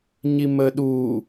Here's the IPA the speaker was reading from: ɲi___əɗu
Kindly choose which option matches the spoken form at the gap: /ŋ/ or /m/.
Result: m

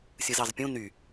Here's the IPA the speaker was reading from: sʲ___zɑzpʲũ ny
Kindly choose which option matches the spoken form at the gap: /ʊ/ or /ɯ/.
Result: ɯ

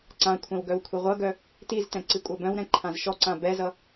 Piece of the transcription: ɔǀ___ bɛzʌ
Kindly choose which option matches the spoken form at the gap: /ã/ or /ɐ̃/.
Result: ã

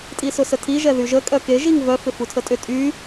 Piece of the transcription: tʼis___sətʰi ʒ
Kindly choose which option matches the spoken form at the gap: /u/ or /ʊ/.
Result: ʊ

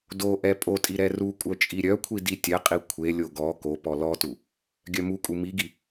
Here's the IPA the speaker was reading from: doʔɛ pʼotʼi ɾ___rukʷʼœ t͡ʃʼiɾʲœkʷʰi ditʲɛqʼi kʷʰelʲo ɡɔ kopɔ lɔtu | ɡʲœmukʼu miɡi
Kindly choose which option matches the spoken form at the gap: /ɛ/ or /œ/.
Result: ɛ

